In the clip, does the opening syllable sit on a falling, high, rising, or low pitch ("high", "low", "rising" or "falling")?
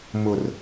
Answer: low